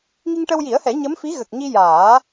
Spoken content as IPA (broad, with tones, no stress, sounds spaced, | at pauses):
ŋ i˧ ŋ ʈ ə˧ w j i˨˩˦ ə̯ h ɛ˨˩˦ ɲ ə˧˥ m f i˧˥ ɣ ə˨˩ k̚ ɲ i˧ j aː˨˩˦